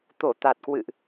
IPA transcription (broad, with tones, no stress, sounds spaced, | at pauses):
t̪ o˧˩ t̪ a˨˩ t̚ k w ɨ̰˧˨ ʔ